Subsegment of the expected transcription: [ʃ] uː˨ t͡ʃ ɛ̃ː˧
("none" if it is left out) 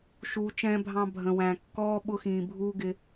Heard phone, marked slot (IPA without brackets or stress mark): ʃ